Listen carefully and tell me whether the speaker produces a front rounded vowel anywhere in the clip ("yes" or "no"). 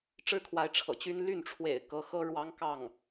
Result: yes